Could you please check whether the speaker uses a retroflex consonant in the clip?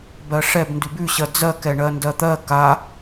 yes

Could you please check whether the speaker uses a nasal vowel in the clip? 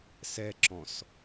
yes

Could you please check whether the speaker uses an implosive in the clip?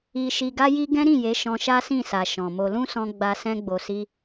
no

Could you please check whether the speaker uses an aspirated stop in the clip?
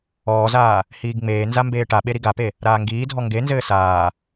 no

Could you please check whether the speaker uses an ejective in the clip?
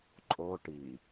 yes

